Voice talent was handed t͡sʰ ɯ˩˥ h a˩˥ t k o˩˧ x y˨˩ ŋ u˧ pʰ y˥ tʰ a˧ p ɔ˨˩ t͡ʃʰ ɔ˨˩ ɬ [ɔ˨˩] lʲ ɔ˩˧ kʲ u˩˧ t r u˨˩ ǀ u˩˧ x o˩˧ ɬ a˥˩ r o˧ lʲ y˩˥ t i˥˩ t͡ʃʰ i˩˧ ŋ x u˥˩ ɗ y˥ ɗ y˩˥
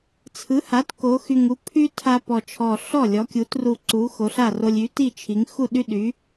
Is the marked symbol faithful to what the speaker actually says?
no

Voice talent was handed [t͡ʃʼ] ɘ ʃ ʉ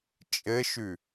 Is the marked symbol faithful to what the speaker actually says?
yes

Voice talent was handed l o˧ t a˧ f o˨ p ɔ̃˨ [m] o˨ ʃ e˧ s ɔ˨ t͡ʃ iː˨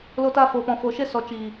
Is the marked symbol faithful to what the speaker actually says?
no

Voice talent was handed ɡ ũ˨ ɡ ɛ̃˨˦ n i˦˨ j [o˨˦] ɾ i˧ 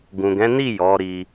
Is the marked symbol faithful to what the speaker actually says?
no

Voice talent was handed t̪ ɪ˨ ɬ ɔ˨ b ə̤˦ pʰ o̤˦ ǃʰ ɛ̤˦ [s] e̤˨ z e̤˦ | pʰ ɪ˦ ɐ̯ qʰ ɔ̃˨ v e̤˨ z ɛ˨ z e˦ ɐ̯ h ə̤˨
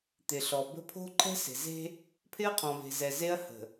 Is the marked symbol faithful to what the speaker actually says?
yes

